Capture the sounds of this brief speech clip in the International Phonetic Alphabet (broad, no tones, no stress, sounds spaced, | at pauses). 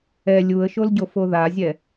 ɛ lʲ u ə̯ ʃ o l ɟ o f o ð a zʲ ɛ